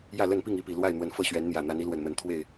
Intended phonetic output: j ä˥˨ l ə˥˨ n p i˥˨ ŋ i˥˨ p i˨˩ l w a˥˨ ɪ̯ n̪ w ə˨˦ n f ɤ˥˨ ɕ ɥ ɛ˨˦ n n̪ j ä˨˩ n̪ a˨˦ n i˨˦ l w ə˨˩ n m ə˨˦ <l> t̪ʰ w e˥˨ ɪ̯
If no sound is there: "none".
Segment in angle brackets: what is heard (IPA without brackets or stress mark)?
n